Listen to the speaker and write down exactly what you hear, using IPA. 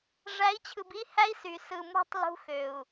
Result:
ʐ æ˨˦ i̯ t͡ɕʰ ɯ˨ b i˦ h æ˦ i̯ s y˨ s ɯ˨ m ṳ˦ tˤ l ṳ˦ x ø˨ u̯

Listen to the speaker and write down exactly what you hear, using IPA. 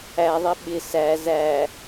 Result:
æ ðˤ ɪ ɓ ɪ s æ z æ

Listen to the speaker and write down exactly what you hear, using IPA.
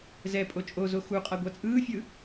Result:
z ɛ pʼ o t͡ʃʼ o z o x u qʼ a ɡʷ a t͡sʼ ɯː fʲ ɯ

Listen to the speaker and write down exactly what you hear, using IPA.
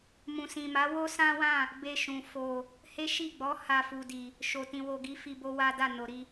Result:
m ũ˨ s ĩ˨ m a˨˦ w o˦ s ã˦ w ã˦˨ | b e˧ ʃ ũ˨ f o˨ | h e˦ ʃ i˦˨ ɡ͡b ɔ˨˦ h a˧ f u˨ d i˨ | ʃ o˨ t ĩ˨ w o˨ ɡ i˨˦ f i˧ b o˦ w a˦ d a˦˨ n o˨ ɾ i˧

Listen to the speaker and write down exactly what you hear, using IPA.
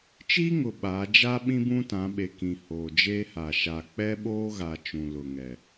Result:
t͡ʃ iː˦ ŋ ʊ˨ ɓ aː˨˦ d͡ʒ a˦ ɓ ĩ˦ b ũ˦ t ã˨˦ ɓ e˨ k ĩ˨ h oː˨ d͡ʒ eː˦ h a˨ ʃ a˨ k͡p ɛ˦ ɓ oː˦ ɣ a˨ t͡ʃ ũ˨ l ʊ˨ ŋ ɛ˨

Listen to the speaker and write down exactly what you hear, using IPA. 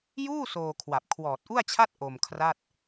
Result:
j uː˥˩ s oː˧ kʰ w a˨˩ p̚ kʰ w ɔː˨˩ t̚ ʔ u˥˩ a̯ t͡ɕʰ a˥˩ t̚ ʔ o˧ m kʰ r a˥˩ t̚

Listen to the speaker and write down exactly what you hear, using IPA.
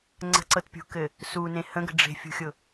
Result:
ŋ͡ǀ ə̤ ǀ ɤ t pʲ ṳ k ɘ | s u n ẽ h ə̃ ɡ ə̤ ɖ͡ʐ e̤ fʲ ṳ xʲ ʊ

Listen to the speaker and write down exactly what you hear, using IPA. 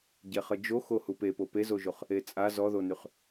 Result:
ɟ ɛ χ ə d͡ʒ o x o h u p e p o p e z o ʒ o χ | e t͡sʼ a z ɔ ð o n y χ

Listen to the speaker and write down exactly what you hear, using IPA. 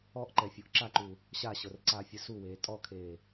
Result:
ɔ ʔ ǃ ɛ fʲ o ʔ ǁ a ǃ u | ɕ a ɕ ɤ r ǀ aː fʲ ɯ s u w eː tʼ ɔ kʰ eː

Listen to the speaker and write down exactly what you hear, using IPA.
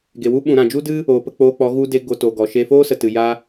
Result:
ɡ e˨ w u˦ ɓ ũ˨ ɾ ã˨ d͡ʒ u˦ d ɨ˦ | oː˨ p ə˧ k͡p oː˧ k͡p ɔ˨˦ ɣ u˧ d e˧ ɡ o˧ t o˨ ɡ ɔ˨ ʃ eː˧ f oː˦ s ə˨ t ɨ˨ j a˧

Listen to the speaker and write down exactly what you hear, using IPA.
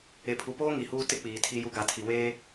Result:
e˨ pʰ u˨ p oː˦ ŋ i˨ h uː˦ t ɪ˦ k͡p iː˨ tʰ i˦ j u˦ ɡ a˨ tʰ i˨ w eː˦

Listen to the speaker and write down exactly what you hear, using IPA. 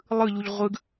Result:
lˠ ɯ ʎ u ʎ ʁʷ ɯ ɡ

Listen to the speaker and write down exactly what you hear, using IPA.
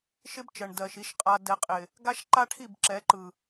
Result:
ʃ ɪ˦ b t͡ʃ ɜ˨ ɳ d ɜ˨ ʃ i˨ ʃ qʼ a˨ d ɛ˨ qʼ ɪ˨ | ɡ a˦ ʃ ǃ a˦ ʈʰ i˦˨ b ǁ ɛ˨˦ ǃ ɯ˨

